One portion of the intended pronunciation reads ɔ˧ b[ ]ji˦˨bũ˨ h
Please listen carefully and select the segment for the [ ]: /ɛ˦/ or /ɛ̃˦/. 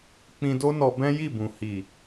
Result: ɛ̃˦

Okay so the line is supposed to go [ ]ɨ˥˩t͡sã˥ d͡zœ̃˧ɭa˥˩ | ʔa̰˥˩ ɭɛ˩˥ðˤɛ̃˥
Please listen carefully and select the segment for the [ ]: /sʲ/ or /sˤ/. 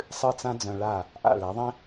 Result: sˤ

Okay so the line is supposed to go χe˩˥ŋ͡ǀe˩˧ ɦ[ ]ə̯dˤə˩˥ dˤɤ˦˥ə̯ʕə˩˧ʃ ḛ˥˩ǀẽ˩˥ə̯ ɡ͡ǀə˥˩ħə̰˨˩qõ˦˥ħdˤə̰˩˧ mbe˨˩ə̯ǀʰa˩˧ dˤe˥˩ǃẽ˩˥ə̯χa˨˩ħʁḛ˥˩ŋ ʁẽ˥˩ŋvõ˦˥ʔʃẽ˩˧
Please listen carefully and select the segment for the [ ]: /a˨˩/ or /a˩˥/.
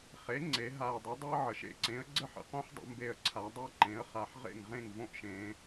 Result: a˨˩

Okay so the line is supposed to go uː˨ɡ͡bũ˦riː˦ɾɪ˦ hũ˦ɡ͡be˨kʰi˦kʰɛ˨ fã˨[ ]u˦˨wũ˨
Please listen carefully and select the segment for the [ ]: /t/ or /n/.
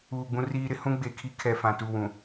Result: t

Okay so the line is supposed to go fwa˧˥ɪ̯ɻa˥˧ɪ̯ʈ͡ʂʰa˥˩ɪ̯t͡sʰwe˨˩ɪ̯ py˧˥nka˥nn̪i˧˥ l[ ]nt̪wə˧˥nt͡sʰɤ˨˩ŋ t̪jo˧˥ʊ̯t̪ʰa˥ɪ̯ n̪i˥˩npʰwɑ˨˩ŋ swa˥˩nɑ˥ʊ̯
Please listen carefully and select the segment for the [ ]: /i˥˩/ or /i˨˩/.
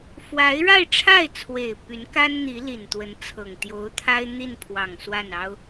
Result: i˨˩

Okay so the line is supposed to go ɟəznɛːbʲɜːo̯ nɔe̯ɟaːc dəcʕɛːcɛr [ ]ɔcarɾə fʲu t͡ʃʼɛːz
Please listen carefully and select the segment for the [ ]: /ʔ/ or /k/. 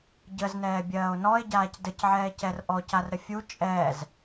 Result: ʔ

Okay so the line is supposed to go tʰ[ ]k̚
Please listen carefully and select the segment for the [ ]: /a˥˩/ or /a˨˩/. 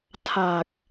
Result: a˨˩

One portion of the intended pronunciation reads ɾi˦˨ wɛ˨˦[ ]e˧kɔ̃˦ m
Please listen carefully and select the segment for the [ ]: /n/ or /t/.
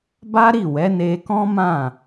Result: n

